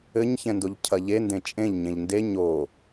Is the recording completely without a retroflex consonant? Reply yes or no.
yes